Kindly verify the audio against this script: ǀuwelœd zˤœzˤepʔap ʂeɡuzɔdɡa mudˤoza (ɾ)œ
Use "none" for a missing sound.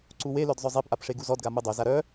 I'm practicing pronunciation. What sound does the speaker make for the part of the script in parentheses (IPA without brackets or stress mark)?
ɾ